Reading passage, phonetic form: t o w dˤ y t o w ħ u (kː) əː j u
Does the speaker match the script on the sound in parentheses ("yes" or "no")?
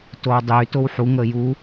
no